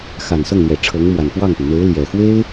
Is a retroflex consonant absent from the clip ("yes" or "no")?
no